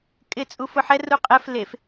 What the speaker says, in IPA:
kʼ ɪ t͡sʼ u f ʊ ħ ɛ r u qʼ ɛ f l e f

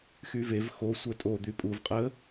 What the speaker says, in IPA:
x y v e v x o sʷ œ tʼ o d̪ y pʼ u v qʼ ə

